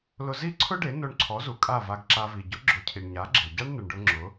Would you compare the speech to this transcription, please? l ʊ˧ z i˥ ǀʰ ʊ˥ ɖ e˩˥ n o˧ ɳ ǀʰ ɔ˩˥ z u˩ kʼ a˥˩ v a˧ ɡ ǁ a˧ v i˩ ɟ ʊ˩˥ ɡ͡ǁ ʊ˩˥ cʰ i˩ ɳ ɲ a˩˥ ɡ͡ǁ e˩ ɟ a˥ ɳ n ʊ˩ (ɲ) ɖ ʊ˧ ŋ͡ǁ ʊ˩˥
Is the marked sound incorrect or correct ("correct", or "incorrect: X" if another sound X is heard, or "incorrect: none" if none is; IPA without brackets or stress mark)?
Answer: incorrect: ɳ